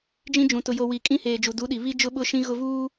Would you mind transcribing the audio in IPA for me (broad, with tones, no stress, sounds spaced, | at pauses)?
d͡ʒ ĩ˦ d͡ʒ ũ˨ t ʊ˨ j o˨ w i˨ kʼ ĩ˦ h eː˨ d͡ʒ u˨ d u˨˦ ɗ i˨ β i˦ d͡ʒ ʊ˦ ɓ ʊ˦ ʃ ĩ˦ ɣ ʊ˦ v uː˦